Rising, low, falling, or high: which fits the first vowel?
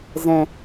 low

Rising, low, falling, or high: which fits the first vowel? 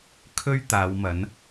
high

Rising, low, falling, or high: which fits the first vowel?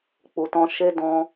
low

